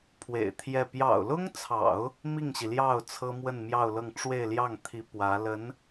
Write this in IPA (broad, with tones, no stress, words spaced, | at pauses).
pʰwḛ˨˩ɪ̯t̪ʰjɛ˥˩ pjɑ̰˨˩ʊ̯lʊ˥ŋt͡sʰɑ̰˨˩˦ʊ̯ | mi˥˩ŋɕi˩ljɑ˥˩ʊ̯ t͡sʰɤ˥mwə˥˧n mjɑ˥˧ʊ̯lɤ˥˧ŋ ʈ͡ʂwe˥˧ɪ̯ljɑ˥˩ŋt̪ʰi˧˥ pwä˧˥ lə˧˥n